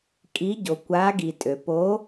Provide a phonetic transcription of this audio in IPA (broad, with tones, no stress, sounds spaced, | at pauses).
kʼ i˨˥ ɟ o˩ kʷ a˨˥ ɡ i˩ tʼ ø˩ p o˨˥